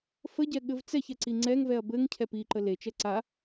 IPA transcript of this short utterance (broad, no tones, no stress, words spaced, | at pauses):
fəɟɛ ɠɘvt͡sɛçɛ ǀiŋ͡ǀɛŋvɛɐ̯ bɘŋ cʰɛpiǃə let͡ʃɛ ǀa